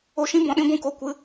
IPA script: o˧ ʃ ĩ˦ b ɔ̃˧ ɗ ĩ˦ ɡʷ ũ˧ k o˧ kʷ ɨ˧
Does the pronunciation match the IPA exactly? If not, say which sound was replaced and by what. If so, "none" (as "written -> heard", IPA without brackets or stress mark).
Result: none